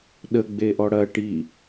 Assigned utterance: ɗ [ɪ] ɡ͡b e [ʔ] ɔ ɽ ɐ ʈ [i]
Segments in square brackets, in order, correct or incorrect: incorrect: ə, correct, correct

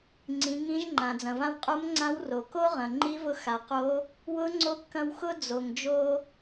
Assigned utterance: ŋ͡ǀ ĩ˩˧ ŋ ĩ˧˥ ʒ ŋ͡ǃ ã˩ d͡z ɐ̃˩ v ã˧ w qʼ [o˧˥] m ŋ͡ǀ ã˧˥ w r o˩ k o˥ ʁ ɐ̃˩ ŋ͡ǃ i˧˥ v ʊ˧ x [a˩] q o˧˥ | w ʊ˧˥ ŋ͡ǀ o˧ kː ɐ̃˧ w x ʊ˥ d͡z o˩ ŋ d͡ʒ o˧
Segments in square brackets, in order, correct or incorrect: correct, correct

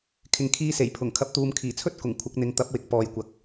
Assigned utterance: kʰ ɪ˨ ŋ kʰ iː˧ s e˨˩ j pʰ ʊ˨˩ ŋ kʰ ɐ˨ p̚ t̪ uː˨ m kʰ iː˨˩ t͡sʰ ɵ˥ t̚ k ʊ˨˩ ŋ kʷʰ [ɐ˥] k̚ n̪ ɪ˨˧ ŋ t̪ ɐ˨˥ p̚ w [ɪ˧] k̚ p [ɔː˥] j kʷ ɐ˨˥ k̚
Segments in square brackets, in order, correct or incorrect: incorrect: ɐ˨˥, incorrect: ɪ˨, incorrect: ɔː˨

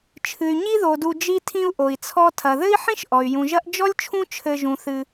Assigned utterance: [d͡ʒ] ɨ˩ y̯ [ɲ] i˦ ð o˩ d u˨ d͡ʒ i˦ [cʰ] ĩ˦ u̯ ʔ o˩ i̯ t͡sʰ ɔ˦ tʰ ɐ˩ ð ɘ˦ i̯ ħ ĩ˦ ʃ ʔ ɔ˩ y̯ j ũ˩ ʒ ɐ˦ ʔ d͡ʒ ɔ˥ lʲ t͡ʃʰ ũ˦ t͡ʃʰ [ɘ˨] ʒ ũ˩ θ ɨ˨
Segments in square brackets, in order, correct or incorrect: incorrect: t͡ʃʰ, correct, incorrect: tʰ, correct

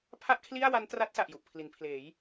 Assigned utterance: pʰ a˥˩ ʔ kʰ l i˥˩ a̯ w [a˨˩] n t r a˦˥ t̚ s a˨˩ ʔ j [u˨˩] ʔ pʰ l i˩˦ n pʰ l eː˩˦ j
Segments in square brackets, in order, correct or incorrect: incorrect: a˦˥, correct

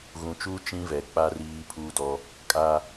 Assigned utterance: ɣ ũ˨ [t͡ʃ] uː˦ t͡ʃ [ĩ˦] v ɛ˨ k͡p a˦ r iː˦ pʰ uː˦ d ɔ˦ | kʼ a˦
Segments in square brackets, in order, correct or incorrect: correct, correct

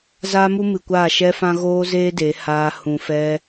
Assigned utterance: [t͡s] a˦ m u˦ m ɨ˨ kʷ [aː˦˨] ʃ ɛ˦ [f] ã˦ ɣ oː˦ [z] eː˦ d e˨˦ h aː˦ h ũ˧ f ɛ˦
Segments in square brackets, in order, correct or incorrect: incorrect: z, correct, correct, correct

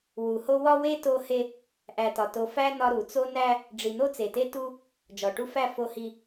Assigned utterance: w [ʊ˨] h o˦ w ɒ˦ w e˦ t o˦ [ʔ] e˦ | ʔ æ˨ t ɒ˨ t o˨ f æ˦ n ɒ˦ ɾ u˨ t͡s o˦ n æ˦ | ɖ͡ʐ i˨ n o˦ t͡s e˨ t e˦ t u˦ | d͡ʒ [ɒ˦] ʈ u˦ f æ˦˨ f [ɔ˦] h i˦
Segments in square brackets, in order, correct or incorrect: incorrect: u˨, incorrect: h, incorrect: ɒ˨, incorrect: o˦

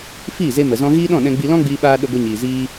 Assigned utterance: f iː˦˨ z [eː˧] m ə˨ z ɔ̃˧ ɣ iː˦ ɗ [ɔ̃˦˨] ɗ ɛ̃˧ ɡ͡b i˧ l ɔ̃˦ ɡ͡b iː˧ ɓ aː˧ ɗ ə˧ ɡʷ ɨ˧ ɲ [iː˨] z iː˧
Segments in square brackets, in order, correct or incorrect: incorrect: e˧, correct, correct

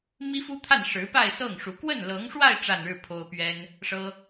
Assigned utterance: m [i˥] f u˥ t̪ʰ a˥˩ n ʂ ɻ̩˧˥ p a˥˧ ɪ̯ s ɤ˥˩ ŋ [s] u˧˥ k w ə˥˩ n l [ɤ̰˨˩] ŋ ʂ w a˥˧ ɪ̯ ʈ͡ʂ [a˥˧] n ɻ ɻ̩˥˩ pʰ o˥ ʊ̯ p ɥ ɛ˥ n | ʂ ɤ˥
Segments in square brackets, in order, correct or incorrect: correct, incorrect: ʂ, incorrect: ɤ˧˥, correct

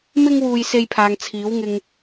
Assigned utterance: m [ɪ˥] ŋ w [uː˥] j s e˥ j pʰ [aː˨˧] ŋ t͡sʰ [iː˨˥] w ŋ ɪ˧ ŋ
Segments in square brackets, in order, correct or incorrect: correct, correct, incorrect: aː˧, correct

